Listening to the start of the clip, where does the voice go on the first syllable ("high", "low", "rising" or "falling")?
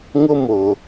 high